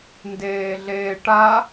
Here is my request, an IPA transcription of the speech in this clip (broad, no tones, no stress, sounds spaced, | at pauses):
n d eː ɮ eː ʈ a